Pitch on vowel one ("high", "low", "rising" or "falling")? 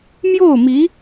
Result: falling